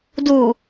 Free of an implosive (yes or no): yes